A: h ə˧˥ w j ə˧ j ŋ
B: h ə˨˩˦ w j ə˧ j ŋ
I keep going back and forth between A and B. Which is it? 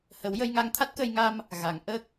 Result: B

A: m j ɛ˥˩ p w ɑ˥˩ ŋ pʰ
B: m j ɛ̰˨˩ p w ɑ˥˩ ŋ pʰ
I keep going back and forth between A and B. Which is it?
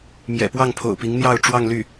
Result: B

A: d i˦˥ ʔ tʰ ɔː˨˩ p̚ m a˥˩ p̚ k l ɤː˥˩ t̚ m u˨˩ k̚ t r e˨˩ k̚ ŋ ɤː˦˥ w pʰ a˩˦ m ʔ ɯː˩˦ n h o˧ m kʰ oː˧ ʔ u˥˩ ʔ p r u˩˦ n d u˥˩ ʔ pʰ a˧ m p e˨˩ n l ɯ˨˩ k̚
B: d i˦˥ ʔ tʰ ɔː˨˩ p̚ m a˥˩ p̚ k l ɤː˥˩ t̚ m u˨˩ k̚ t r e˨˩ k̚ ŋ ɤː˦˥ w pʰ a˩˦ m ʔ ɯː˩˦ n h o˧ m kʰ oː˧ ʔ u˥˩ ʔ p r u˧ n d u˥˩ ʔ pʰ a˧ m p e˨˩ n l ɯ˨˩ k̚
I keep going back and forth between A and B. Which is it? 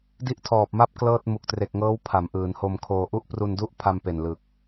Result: B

